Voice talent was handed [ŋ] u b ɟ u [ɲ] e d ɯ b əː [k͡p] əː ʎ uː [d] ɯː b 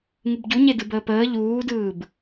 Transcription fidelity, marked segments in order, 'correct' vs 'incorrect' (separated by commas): correct, correct, incorrect, correct